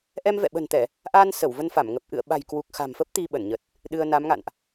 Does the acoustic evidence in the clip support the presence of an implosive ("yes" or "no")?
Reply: yes